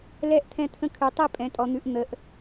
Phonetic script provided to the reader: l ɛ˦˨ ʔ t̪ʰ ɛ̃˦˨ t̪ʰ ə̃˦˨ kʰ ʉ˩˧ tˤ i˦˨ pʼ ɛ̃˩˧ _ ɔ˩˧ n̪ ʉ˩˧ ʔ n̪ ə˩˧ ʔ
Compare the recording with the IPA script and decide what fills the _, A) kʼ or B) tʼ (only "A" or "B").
B